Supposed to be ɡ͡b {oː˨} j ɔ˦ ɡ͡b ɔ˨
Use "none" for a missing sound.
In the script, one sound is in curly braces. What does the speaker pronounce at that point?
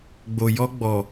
o˨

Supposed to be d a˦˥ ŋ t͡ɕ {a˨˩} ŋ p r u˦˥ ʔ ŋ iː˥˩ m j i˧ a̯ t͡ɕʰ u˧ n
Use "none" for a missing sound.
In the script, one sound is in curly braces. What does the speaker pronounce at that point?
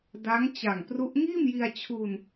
a˨˩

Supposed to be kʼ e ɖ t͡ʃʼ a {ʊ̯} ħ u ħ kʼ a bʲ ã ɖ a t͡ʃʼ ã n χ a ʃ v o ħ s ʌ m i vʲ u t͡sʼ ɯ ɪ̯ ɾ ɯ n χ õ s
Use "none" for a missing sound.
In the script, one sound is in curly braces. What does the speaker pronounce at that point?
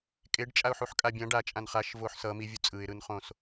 ʊ̯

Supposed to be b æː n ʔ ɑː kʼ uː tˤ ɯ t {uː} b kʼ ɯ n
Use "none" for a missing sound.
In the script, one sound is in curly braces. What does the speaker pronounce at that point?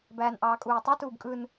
uː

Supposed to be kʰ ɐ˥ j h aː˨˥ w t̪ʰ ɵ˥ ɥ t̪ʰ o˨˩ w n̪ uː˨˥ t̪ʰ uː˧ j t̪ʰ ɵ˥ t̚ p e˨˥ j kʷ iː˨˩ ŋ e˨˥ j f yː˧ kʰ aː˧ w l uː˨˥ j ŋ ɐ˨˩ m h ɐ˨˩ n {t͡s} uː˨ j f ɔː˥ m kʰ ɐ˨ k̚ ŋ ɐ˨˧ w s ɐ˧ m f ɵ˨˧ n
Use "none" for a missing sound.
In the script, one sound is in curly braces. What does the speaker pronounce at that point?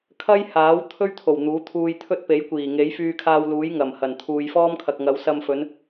t̪ʰ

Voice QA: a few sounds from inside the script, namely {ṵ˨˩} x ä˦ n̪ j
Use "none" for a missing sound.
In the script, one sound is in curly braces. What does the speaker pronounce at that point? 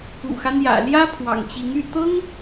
ṵ˨˩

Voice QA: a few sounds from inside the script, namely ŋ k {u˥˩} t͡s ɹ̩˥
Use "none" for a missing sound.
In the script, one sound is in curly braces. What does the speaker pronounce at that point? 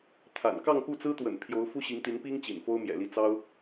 u˥˩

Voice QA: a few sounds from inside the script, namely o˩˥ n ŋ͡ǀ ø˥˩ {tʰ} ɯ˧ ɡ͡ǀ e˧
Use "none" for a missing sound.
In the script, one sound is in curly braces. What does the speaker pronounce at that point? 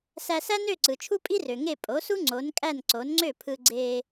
pʰ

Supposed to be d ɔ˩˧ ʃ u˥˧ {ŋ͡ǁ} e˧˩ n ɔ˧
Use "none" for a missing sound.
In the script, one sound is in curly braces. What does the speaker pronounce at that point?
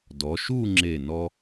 ŋ͡ǁ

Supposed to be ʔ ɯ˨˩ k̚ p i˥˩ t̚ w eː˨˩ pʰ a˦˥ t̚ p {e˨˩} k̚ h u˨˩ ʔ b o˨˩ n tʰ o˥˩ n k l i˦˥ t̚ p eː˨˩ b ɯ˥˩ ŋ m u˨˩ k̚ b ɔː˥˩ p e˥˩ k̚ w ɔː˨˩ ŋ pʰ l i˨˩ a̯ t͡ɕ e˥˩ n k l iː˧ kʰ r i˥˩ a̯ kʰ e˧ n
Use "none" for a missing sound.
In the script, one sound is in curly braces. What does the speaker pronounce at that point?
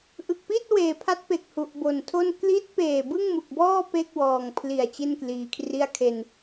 e˨˩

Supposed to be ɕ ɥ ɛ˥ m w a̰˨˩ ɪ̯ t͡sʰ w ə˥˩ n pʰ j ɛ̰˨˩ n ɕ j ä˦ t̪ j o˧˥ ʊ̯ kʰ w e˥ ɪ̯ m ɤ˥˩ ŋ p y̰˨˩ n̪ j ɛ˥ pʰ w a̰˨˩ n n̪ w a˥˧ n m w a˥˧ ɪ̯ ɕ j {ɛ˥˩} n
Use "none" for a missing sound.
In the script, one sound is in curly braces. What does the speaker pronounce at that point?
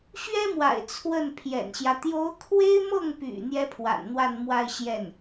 ɛ˥˩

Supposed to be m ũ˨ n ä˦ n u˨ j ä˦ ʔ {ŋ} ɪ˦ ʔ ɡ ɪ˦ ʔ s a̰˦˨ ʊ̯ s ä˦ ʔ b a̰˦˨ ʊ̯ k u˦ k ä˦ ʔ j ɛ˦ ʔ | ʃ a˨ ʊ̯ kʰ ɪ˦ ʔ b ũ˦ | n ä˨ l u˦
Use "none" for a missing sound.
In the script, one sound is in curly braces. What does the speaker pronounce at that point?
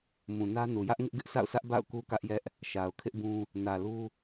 ŋ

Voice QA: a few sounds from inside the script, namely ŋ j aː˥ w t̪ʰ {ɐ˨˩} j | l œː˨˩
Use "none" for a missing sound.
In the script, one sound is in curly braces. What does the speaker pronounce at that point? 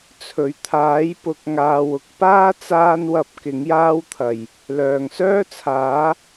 ɐ˨˩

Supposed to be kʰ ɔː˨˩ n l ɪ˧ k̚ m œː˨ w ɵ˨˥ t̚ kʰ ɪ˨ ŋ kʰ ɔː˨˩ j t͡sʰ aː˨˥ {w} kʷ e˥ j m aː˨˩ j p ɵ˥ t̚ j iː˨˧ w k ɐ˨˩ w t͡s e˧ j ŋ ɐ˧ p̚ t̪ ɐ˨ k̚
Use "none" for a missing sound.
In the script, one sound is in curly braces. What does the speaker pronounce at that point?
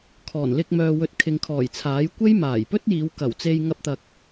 j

